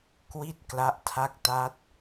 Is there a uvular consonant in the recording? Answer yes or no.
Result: no